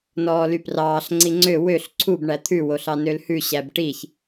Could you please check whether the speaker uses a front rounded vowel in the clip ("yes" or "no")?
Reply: yes